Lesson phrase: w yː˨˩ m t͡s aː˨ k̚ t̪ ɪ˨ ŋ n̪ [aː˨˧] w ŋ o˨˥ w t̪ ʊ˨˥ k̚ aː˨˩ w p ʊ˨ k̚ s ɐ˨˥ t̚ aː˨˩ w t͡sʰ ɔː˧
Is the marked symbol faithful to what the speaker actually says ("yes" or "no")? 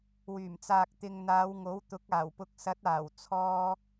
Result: yes